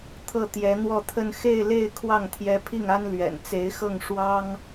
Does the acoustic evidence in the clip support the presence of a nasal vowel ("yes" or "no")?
no